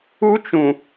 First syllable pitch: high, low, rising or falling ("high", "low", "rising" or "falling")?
high